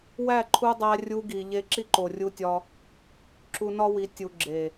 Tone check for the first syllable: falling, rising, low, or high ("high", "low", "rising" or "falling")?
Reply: falling